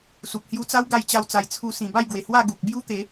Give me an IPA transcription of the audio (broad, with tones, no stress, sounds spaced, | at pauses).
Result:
s u˨ p̚ h j u˧ t͡s a˦ w ɡ a˥˧ j t͡ɕ a˦ w t͡s a˧ j t͡sʰ u˧ s ĩ˨˩ b a˥˧ j ɡ w e˨˩ h w a˥˧ ɡ u˨ k̚ b j u˦ t̪ e˨˦